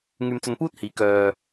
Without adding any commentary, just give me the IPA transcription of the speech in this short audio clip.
ŋyː˧mt͡sɵ˧npuː˥t̚hiː˨˥ kœː˧

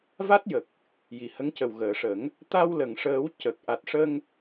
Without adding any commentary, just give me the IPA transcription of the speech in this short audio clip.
va˦˥t̚jə˨˩k̚ | ji˨˩hə˧˥ŋcə˨˩w ɣəː˨˩˨ʂə˨˩˦ŋ | t̪a˧wlə˨˩˨ŋʂəː˨˩˦w cə˨˩k̚ ʔa˨˩t̚ʂə˧ŋ

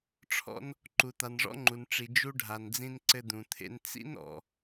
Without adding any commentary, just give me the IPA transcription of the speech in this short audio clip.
ʈ͡ʂʰɔ̰˧n | ǃu˩t̪a˩nʐɔ̰˧ŋ͡ǃu˩n ʈ͡ʂi˩ d͡ʒu˧ɖʱa˩nd͡zĩ˧n ǀɘ˧d̪ũ˩t̪ʰḛ˧n t͡sḭ˥nɔ̰˩

